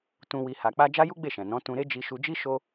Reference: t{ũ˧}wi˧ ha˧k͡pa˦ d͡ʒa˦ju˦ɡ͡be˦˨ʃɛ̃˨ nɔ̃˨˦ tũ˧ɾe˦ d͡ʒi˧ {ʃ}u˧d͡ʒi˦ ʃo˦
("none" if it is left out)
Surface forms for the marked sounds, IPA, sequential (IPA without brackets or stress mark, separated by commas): ũ˧, ʃ